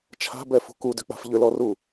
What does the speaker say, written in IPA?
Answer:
t͡ʃʰa̤bɛfṳ kudʏk͡pa̤f ʎʏlɔru

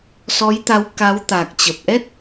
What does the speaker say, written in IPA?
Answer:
sɔ˨˦jt̪a˨˦w ka˨˦wt̪a˨˩k̚t͡ɕə˨˩p̚ ʔɛ˦˥t̚

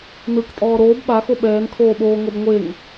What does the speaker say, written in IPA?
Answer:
nɯk tʼɔːɾoːb ɓaxo ɓɛːnkʰoːɓoːŋɤb ŋʷeŋ

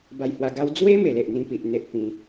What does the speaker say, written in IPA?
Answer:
ba˧jhwa˧ɡa˦w d͡zwe˦ me˨˩le˨ʔ n̪ĩ˦pi˨ʔn̪e˦ʔpĩ˨˦

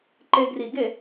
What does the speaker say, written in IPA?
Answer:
ǃe˧ɡri˨˩˦ɡe˨˩˦

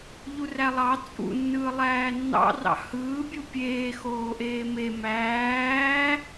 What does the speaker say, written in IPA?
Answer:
ʎurælˠɑ t͡sʼṵnːɯː lˠæːnːɑ̰rɑ̰ hɯːbʲu pʲeː xoːʔeːme mæː

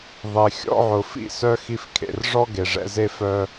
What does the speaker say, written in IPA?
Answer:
ðˤe˨ xʲɔ̰˧ʕʊ˨ fḭ˦˨sœ˦ xi˧fkʰḛ˨r ʐɔ˦ɡe˨ʐɛ̰˧ ze˦fœ˦

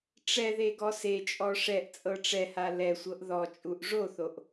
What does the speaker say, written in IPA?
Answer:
ʈ͡ʂɛðe ɡɔset͡ʃʼɔ ʂɛʔ t͡sʼɤʈ͡ʂɛha lɛsʷɤʔ ðɔt͡ʃʼuʔ ʐoθoʔ

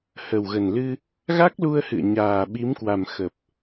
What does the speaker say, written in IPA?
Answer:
hə˨˩wɣə˨˩nlɨ˧ | ɣa˦˥k̚lu˧ə̯hɨ̰˧˨ə̯ ɲaː˨˩ɓi˨˦mkwa˨˩m xə˨˩p̚

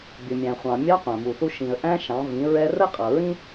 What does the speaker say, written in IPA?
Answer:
bʲʊ˩mʲæ̃˩χʷɑ̃˩ mʲɑ˧˥qʷæ̃˩mu˩θu˧ ʃĩ˩ə̯ʔæ̃˧ ʃɑ̃˩˧vĩ˩˧ ɹɛ˧rə˥ qʼʌ˩ɹĩ˥

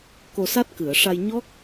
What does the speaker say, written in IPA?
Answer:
ko˧sa˦˥t̚ kɨ˨˩˨ə̯ʂa˧jɲɔ˦˥k̚

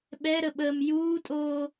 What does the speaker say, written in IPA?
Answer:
ɓɛɾə ɓəːmjuːtʼoː

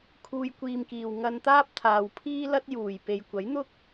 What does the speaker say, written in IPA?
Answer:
kʰuː˧jkʷiː˧mkiː˨w ŋɐ˧nt̪aː˥p̚t̪ʰaː˨w pʰiː˥lɐ˥t̚juː˨˩j pe˨jkʷɐ˨˥jn̪ʊ˥k̚

